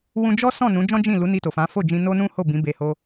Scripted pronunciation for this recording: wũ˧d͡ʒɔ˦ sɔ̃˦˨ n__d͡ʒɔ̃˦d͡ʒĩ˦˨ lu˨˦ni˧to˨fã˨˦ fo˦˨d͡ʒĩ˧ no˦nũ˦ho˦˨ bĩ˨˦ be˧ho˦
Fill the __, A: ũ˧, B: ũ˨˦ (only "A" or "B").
B